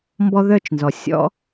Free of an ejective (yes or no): yes